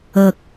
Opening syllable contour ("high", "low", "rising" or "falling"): low